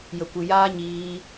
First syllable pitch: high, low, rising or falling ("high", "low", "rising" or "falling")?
low